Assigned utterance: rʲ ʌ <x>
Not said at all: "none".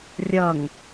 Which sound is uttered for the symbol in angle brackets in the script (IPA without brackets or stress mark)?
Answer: ŋ